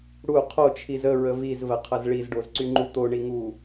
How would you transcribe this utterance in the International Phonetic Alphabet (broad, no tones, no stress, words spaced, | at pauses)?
ɽu qʰot͡ʃʰiz əɹə vizvəqʰəz ɭizɖozǀyŋ͡ǃu t̪oɳiŋu